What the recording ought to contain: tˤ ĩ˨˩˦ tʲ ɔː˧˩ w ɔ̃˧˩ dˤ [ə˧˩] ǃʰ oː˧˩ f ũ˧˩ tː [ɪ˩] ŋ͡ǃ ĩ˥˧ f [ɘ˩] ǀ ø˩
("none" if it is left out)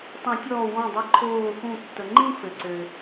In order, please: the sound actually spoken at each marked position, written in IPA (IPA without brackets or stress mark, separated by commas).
ə˧˩, ə˩, ɘ˩